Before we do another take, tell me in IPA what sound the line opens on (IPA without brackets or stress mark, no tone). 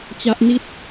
t͡ɕ